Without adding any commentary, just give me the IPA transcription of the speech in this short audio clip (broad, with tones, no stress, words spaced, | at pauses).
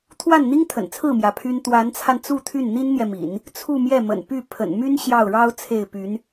t̪ʰwa˥˩nn̪i˥ŋt̪ʰə̰˨˩n t͡sʰɹ̩˥˩mjä˩ pʰy˥n t̪wa˧˥nt͡sʰa˧nt͡su˥˧ t̪ʰy˥˩nn̪i˥nn̪jɛ˨mḭ˨˩˦n | t͡sʰu˥˧mjɛ˥˩mə̰˨˩n py˥˩ pʰə̰˨˩nmy˥n ɕjɑ˥˩ʊ̯ɻɑ˥ʊ̯t͡sʰe˥˩ɪ̯py˧˥n